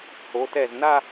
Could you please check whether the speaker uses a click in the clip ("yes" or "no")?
no